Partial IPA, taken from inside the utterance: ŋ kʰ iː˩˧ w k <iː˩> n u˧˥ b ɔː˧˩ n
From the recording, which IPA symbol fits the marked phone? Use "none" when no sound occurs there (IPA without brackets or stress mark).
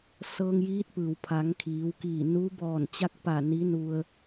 iː˧˩